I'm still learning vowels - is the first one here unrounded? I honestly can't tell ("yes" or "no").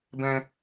yes